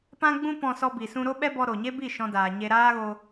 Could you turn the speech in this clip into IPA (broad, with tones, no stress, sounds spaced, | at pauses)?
p ã˦ ɡ͡b ũ˦ p ɔ̃˧ s ɔ˧ b i˨ s ũ˧ ɾ o˦ ɓ ɛ˦ b ɔ˧ ɾ o˨ ɲ e˦ b i˦˨ ʃ ɔ̃˧ d aː˨ ɲ e˧ ɾ aː˦ ɣ o˧